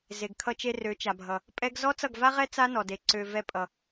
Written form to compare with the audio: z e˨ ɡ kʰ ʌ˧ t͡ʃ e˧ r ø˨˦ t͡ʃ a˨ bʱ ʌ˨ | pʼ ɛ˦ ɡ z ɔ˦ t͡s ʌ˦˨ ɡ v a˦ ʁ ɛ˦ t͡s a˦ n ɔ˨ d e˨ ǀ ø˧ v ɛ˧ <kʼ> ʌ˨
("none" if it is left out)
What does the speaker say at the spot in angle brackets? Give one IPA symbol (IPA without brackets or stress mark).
pʼ